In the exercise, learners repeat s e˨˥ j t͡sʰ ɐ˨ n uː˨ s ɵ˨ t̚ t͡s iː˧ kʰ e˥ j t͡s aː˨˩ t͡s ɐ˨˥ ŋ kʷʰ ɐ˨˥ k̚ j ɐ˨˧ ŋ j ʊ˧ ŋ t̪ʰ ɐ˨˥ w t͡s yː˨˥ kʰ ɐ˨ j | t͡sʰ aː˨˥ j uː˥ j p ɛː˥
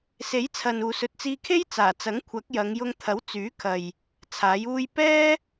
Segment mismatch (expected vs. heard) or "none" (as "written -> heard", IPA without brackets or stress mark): none